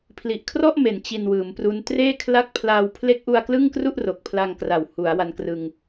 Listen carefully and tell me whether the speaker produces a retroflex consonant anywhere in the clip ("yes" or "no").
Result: no